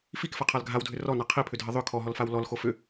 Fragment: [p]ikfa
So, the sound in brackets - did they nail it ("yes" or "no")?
no